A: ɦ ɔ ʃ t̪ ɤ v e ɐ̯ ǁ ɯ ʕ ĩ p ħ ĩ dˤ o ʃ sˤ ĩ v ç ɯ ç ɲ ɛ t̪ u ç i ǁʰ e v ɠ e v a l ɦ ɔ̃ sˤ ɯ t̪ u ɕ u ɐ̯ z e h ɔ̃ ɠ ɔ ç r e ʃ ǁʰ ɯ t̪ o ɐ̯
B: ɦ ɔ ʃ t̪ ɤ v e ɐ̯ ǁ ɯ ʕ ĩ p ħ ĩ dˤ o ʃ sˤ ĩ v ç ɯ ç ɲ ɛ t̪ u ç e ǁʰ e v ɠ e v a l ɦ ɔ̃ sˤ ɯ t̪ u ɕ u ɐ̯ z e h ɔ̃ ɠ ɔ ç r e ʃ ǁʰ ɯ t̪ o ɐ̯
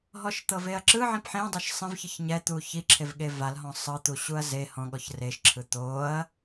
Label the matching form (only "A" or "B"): A